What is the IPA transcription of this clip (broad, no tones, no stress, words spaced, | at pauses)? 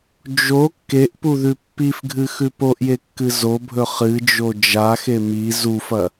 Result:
d͡ʒo kːeʔpuðʉ pːifɡʱɨxʉ poʔjekːɨ zobʱɵ χɨd͡ʒo d͡ʒaxe mi zufɐ